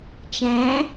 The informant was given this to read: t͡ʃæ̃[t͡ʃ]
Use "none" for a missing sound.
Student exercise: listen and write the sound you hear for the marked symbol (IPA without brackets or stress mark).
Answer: none